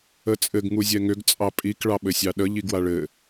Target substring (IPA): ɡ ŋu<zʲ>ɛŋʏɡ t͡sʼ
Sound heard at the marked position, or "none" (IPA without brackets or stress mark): zʲ